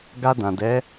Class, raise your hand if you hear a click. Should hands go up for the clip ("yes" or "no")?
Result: no